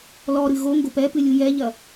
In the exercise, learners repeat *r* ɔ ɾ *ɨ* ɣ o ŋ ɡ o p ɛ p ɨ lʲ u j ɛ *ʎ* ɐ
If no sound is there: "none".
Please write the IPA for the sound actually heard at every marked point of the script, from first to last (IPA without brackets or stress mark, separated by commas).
l, ɨ, ʎ